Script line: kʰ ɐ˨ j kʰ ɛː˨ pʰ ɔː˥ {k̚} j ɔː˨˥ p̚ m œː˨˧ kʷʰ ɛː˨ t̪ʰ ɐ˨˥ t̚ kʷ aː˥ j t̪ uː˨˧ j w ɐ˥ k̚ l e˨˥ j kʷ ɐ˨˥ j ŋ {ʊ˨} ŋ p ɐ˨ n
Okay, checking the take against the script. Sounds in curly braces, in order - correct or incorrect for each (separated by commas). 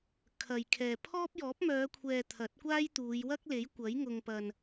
incorrect, correct